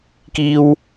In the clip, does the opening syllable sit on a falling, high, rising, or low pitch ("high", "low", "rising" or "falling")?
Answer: high